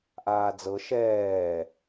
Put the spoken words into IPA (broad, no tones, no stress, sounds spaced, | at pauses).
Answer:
ʔ aː d͡z ɤ ʃ ɛː